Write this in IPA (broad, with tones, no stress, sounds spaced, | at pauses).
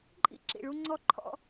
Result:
ǃʼ ḭ˦ ǁ ḭ˨ ɭ u˦ ŋ͡ǀ ɔ˦ ǃʰ ɔ̰˦